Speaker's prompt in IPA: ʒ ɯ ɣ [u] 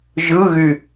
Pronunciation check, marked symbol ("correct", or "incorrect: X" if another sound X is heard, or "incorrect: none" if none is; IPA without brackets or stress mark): incorrect: y